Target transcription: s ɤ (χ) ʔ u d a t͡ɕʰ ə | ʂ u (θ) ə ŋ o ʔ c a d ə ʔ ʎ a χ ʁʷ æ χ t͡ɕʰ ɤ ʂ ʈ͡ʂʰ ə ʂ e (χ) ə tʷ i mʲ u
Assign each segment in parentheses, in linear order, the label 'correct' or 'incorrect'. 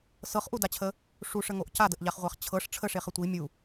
correct, incorrect: ʂ, correct

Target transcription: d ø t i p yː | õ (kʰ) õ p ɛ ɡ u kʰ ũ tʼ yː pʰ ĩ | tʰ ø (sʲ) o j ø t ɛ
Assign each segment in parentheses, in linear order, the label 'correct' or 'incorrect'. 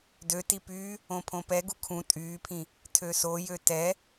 incorrect: pʰ, incorrect: s

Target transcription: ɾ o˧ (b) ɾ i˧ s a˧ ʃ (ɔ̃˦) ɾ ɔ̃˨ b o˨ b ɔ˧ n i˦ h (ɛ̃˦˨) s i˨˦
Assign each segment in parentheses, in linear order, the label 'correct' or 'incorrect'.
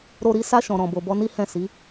incorrect: none, incorrect: ɔ̃˨, correct

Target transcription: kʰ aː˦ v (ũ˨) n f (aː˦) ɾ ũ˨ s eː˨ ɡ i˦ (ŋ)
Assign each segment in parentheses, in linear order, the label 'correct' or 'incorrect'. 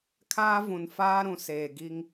correct, correct, correct

